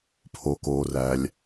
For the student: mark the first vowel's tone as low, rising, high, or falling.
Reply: low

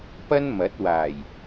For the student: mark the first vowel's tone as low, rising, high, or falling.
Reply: high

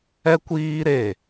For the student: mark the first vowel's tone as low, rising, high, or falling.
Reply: high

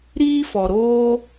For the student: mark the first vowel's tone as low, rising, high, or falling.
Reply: high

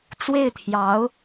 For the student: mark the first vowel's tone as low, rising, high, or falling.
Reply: falling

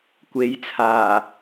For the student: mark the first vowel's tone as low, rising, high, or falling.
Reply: rising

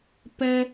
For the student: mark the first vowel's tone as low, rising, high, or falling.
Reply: high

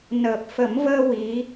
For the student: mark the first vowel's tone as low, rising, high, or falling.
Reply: low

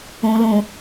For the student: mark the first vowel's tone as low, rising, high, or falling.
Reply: low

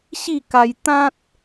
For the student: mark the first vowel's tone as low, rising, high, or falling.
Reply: falling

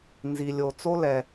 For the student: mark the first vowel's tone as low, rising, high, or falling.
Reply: low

